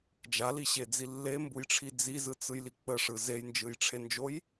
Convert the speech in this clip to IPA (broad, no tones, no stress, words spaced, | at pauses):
d͡ʒaliɕed͡zi lːembujʈ͡ʂʰi d͡zizɯt͡sɯjli k͡pəʂɯ zejnd͡ʒɯjʈ͡ʂʰend͡ʒoj